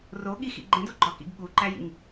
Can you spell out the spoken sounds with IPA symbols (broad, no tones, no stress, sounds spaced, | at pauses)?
r o ɠ i x ḭ ɡ͡ǃ ẽ d o ɡ͡ǃ ɒ k ḭ ɡ ɠ u ǃ æ j ḭ ŋ